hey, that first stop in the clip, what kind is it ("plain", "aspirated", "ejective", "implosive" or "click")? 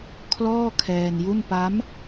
aspirated